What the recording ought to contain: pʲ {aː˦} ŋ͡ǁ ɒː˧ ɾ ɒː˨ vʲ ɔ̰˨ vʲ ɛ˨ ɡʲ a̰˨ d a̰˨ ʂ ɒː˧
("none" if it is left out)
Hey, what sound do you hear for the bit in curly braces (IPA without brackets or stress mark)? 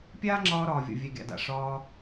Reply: aː˦